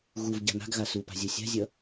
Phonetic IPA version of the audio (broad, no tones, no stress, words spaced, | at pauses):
ɣuv ɟa̤na̤ɡɣa supa̤ zʲosʲa̤zʲʌ